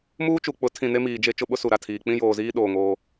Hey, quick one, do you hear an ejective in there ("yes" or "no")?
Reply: no